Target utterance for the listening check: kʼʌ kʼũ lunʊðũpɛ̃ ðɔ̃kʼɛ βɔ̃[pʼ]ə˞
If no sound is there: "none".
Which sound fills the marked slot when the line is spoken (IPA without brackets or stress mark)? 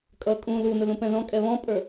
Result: pʼ